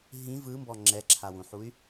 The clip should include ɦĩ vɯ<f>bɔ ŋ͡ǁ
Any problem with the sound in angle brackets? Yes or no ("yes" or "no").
yes